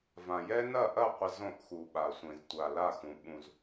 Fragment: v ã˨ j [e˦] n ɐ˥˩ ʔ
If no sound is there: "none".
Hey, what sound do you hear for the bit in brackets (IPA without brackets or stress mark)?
ɛ˦